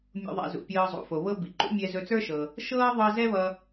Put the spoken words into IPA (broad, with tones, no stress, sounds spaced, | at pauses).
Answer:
mʲ ṵ˧ ðˤ ɛ̰˧ z ṵ˩ pʲ ɤː˧ zˤ ṵ˩ f o˩ β ɤ˥ b i˩ ǃ ṵ˥ mʲ ɛ˧ z ɵ˧ t͡s ə˞˥ ʃ ɤ˩ | ʃ ɤː˥ ðˤ ɤ˥ z ɛ˥ β ʌ˧